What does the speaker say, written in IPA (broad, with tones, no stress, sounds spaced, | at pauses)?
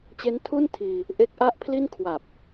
t͡ɕ e˦˥ n tʰ u˥˩ n tʰ iː˧ | ʔ e˦˥ k̚ ʔ a˥˩ ʔ pʰ l i˥˩ n kʰ w a˨˩ p̚